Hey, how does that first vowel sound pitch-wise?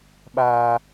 high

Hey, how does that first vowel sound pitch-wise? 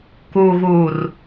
low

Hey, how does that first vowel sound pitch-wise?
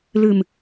low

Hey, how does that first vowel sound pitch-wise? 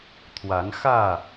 rising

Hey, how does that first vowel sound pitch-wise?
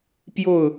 falling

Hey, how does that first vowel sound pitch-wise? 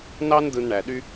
high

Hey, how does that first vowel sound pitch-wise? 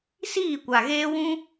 falling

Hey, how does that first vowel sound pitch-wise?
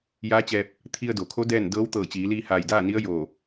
rising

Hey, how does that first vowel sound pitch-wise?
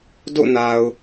falling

